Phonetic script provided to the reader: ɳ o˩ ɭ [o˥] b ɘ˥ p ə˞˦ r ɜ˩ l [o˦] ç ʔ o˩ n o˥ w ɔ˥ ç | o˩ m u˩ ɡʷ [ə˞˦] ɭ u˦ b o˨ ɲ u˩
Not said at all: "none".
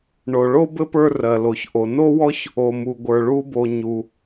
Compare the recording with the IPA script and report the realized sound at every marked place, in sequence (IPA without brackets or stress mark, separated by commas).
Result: o˥, o˩, ə˞˩